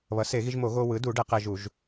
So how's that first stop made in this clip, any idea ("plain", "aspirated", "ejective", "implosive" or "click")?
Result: plain